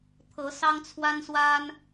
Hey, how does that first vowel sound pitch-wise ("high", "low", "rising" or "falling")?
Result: rising